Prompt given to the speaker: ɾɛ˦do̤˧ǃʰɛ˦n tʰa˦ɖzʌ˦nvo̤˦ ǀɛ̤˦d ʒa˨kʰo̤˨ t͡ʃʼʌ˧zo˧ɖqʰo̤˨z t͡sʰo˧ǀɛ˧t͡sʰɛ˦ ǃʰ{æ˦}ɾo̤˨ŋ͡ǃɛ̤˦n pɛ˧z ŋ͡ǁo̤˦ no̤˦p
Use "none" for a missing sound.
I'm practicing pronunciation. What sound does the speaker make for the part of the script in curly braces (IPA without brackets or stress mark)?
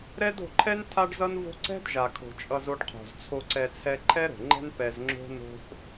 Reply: ɛ˦